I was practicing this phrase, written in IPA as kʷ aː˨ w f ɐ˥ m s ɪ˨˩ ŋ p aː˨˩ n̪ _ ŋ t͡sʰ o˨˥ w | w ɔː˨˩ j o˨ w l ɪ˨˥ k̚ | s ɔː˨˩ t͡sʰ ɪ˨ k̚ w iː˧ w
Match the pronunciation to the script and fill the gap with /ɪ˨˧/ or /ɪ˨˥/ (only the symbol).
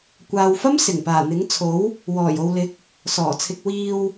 ɪ˨˥